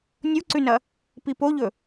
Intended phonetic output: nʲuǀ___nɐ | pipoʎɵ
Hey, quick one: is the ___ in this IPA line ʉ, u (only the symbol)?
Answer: ʉ